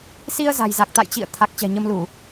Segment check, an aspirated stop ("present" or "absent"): present